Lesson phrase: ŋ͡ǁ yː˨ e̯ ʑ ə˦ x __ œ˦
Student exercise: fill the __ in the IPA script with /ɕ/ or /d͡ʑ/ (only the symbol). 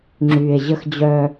d͡ʑ